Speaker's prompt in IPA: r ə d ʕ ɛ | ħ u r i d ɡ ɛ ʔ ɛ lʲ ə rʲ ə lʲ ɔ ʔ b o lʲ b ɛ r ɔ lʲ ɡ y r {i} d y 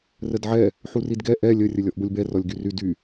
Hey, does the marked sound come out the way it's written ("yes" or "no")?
no